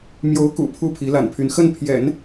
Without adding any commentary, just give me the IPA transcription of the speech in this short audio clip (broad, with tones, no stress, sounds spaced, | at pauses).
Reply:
m j o˧˥ ʊ̯ k ṵ˨˩ pʰ u˥˩ pʰ i˧˥ l a̰˨˩ n pʰ y˧˥ n x ə˥˩ n pʰ j ɛ̰˨˩˦ n